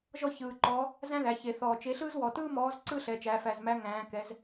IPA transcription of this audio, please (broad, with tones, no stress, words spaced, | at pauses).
ʒɔ˥çɯː˨˩ǃɔ˨˥ | zæ̃˥ðæ˩˧çe˨˩ θɔː˨˩t͡ʃe˨˥ɬɯː˥zwɔ˨˩ tɯː˥mɔː˨˥z ǀɯː˥ɬɛ˩˧t͡ʃæː˩˧fæ˨˩z mæ˨˥ ŋæ̃ː˩˧ kɛ˩˧z